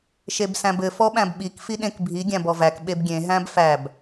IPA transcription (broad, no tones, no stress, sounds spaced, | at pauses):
ʃ e b s æ̃ b ɘ f ɔ ɓ æ̃ b ɓ i k f i ɗ ẽ k bʱ i ɡʲ æ̃ b ɔ v æ k ɓ e b ɡʲ ẽ ɦ æ̃ b f æ b